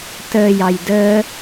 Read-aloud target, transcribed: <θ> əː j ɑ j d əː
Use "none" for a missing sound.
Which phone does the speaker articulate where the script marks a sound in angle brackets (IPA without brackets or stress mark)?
t